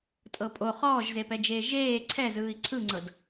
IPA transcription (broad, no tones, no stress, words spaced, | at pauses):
tʼɤpʼo χɔːʒzepɛd͡ʒeː ʒeː ǀʰɛzɯːi̯ ǀʰɯŋ͡ǀɤd